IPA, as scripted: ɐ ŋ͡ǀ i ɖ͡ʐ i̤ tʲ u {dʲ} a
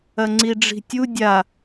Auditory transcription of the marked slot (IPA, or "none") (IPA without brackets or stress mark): dʲ